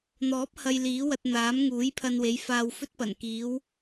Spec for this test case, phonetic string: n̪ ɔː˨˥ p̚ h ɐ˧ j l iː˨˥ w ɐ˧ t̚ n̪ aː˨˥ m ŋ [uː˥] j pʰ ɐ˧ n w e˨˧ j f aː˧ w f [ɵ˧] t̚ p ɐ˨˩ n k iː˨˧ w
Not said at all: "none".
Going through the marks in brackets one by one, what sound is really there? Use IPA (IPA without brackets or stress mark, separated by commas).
uː˨˥, ɵ˥